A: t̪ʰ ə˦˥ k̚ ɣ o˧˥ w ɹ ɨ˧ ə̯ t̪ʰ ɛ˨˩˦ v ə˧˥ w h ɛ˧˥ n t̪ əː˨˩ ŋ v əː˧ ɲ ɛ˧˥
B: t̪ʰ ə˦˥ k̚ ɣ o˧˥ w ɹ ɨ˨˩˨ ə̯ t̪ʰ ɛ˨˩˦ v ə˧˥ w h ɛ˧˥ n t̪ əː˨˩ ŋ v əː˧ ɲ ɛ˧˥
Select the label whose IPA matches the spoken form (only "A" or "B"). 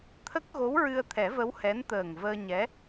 A